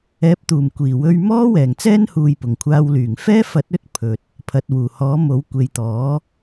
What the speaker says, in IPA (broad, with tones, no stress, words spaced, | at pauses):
ɛː˨˥p̚t̪uː˨˩m kʷiː˨˩wɵ˧ɥ mɔː˥ wɛː˨˩ŋt͡sɛː˥nhuː˨j pʊ˨˩ŋkʷʰaː˧w lyː˨˩ŋfɛː˥fɐ˨˥t̚ ɵ˥t̚pʰɵ˨t̚ | pʰɐ˨t̚wuː˨˩hɔː˨˥ mo˨˥w kʷe˨jt̪ɔː˨˥